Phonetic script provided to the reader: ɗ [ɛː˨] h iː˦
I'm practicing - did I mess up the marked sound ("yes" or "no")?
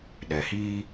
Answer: yes